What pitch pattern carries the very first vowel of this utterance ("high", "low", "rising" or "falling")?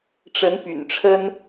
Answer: rising